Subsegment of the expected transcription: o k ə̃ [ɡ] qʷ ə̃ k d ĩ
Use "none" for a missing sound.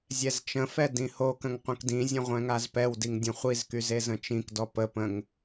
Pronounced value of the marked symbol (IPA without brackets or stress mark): ŋ